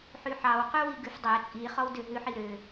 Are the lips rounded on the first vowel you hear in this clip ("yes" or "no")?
yes